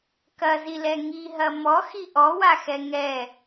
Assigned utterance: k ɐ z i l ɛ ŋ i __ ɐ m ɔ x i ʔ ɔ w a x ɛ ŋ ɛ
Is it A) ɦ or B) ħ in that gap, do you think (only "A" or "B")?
A